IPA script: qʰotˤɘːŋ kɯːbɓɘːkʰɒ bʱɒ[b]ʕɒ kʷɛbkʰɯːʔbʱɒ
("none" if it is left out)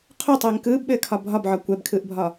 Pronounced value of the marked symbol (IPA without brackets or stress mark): b